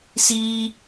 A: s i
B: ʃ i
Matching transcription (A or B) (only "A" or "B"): A